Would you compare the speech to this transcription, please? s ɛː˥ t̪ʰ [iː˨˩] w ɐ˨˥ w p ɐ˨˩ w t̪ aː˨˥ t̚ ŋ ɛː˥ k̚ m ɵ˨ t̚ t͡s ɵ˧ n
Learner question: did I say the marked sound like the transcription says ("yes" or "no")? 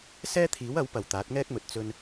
no